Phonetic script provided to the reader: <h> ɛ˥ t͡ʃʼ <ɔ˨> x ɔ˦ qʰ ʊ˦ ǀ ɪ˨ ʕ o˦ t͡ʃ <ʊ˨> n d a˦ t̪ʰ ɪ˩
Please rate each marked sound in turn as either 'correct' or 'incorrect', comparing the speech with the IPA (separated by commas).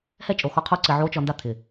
correct, incorrect, incorrect